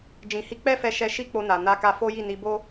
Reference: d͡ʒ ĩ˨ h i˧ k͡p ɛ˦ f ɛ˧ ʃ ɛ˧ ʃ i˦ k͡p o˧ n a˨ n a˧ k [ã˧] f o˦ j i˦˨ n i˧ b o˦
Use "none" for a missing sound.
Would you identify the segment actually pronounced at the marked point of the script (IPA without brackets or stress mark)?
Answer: a˧